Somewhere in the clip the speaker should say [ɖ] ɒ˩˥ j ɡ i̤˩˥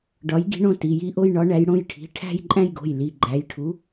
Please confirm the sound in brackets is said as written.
yes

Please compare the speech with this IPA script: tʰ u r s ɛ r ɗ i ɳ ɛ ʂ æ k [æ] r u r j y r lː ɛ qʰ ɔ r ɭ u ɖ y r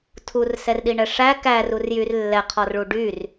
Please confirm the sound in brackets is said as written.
yes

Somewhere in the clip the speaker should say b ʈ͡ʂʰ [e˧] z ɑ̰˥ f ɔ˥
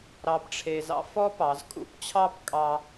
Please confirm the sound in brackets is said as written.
yes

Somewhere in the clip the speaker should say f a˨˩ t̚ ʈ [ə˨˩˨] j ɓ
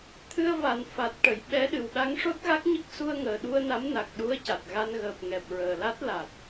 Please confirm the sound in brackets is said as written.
yes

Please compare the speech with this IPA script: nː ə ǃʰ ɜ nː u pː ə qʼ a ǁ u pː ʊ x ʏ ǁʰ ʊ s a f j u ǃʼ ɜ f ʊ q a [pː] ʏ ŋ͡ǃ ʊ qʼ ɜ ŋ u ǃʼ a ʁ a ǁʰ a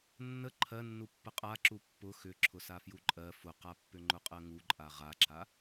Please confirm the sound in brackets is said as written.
yes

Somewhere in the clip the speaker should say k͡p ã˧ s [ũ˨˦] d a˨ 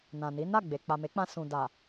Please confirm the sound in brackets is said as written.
no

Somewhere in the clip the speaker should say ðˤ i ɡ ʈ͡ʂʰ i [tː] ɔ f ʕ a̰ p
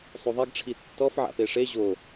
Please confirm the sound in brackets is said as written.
yes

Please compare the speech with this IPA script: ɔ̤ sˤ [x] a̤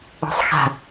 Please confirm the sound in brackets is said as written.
yes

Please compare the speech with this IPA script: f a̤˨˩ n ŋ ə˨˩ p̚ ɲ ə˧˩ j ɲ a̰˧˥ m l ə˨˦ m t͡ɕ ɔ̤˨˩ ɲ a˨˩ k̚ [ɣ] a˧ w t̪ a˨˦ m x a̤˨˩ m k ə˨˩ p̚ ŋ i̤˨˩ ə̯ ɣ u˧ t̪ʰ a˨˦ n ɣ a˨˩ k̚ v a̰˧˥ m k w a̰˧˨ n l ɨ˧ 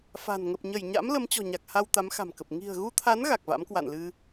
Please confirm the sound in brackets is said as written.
no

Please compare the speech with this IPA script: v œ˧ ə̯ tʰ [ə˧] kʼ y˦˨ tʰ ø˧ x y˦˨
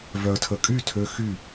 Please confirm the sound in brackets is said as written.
yes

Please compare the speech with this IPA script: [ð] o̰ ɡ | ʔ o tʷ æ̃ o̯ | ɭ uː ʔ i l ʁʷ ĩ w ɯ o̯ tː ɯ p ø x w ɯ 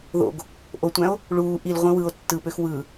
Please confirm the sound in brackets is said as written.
yes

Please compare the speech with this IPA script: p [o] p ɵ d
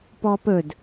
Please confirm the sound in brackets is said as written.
no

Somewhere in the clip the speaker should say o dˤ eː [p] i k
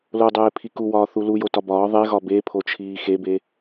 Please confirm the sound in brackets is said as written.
no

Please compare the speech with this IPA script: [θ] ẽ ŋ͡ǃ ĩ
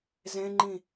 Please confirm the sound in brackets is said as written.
no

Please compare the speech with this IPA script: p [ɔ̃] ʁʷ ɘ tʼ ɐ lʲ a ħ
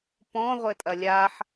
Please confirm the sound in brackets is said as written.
yes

